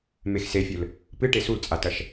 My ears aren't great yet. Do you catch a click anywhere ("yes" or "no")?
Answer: no